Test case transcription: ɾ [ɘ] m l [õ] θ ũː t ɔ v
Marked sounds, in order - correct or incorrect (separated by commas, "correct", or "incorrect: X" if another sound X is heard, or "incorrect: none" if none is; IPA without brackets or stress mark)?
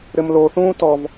correct, incorrect: o